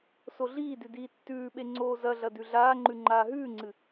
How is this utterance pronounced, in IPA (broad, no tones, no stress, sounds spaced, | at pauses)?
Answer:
s o ɮ iː d ʉ d iː tː ʉː ɓ e ŋ͡ǀ oː z ɐ ɮ ɐ d ʉ ɮ aː ŋ͡ǃ ʉ ŋ͡ǃ aː ɦ ʉː ŋ͡ǀ ɨ